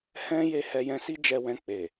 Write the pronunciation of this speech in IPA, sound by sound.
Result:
hɛ̃˦ je˦˨ hɛ˧jɛ̃˧si˦ d͡ʒɛ˧wɛ̃˧ k͡pe˨

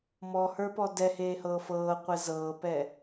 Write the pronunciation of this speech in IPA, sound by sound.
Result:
mɔhə˞pɔ dɛheːhɤː fɤːqʷɛ zɤːpɛ

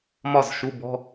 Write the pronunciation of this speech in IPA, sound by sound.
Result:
mɒ˥˩z ʃu˧˥˧bɔ̤˧˥˧

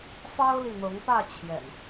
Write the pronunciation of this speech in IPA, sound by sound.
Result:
fɑ˦ʊ̯li˨n̪ɤ˨˦ŋpä˥˨ t͡ɕʰjɛ̰˨˩n

